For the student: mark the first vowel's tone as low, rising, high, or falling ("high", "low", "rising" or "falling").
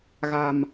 low